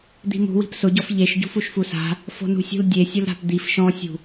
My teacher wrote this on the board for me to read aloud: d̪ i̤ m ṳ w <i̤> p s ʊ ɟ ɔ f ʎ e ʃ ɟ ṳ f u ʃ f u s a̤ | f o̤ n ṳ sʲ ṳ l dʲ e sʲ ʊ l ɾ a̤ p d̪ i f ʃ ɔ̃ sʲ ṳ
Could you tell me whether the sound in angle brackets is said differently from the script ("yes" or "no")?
no